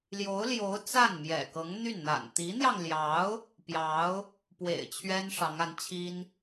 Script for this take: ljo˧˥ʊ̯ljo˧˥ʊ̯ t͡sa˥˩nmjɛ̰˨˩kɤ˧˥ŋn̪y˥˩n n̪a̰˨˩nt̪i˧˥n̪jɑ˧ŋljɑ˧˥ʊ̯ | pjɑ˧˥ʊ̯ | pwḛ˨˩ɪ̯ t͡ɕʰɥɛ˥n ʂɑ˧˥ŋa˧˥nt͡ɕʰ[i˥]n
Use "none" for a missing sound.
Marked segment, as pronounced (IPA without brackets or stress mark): i˥